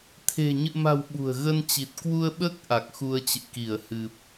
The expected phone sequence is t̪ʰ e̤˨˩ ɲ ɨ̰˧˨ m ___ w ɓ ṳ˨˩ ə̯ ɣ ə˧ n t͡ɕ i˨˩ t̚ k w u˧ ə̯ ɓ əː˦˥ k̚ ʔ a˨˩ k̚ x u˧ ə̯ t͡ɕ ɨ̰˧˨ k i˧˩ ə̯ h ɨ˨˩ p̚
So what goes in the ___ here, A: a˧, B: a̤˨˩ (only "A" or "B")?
B